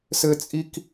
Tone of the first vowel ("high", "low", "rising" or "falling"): high